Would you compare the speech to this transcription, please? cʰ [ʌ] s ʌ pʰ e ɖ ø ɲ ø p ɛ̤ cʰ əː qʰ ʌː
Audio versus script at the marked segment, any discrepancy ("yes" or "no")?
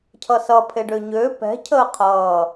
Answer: no